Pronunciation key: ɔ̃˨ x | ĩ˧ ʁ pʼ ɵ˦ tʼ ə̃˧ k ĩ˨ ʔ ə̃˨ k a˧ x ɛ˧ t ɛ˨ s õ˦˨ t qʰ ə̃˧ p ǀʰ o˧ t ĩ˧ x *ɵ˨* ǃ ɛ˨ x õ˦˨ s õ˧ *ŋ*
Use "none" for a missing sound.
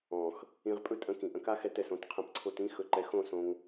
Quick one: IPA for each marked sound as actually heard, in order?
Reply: ɵ˨, ŋ

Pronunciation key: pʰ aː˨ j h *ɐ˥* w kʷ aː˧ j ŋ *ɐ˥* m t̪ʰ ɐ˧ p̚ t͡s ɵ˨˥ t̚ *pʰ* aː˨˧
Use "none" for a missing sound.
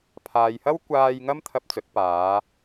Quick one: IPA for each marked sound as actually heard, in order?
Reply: ɐ˥, ɐ˥, p

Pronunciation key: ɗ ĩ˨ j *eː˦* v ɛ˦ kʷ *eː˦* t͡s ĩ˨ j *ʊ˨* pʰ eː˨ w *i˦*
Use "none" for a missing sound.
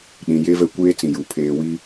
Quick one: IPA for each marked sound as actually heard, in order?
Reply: e˦, eː˦, u˨, i˦

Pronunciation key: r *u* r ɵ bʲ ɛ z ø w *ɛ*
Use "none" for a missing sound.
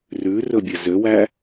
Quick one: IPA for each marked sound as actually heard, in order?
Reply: ʉ, æ

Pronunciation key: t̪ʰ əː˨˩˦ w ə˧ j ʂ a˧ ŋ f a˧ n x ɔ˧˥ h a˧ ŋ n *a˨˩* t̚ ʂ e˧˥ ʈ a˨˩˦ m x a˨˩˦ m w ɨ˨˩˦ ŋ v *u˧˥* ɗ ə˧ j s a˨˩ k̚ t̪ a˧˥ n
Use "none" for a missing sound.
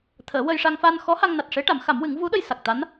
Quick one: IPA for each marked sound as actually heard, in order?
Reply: a˨˩, u˧˥

